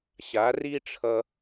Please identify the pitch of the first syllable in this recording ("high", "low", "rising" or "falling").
rising